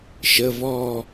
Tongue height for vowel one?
mid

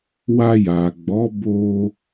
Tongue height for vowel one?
low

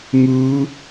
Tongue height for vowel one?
high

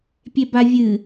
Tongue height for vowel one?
mid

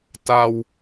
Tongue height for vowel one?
low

